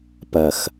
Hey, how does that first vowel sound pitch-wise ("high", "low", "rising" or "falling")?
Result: low